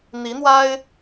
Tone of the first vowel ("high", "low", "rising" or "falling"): rising